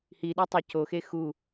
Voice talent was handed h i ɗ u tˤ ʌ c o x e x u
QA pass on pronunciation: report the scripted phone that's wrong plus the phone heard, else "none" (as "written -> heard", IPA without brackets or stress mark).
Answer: none